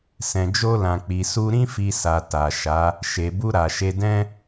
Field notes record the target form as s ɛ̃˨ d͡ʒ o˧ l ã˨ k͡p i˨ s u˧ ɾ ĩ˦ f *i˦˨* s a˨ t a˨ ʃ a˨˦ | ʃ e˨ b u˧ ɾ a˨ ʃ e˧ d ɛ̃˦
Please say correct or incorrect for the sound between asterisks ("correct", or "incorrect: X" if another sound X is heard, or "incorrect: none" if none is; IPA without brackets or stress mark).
incorrect: i˧